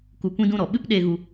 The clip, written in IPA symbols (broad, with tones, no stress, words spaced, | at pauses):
ku˧kʷĩ˦dũ˦ɾɔ˨ ɓɨ˦pɗe˧ ɣu˦